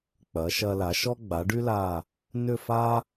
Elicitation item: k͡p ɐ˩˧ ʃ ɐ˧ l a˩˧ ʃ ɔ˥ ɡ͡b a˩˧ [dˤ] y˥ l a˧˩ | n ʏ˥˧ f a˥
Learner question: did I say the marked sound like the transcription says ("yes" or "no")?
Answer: no